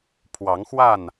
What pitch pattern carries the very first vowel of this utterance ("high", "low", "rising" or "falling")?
rising